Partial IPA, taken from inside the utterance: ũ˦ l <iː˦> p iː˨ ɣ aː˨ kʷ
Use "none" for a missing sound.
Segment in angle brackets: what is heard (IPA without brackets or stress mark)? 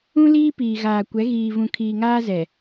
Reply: iː˦